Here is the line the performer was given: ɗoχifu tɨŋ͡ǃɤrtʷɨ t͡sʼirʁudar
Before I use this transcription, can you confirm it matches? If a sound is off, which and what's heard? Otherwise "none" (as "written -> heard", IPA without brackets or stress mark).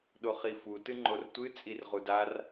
ɤ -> o